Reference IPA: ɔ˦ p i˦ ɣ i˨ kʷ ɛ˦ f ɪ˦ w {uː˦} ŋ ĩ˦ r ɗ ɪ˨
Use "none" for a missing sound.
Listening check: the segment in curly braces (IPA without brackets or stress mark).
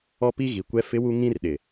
u˦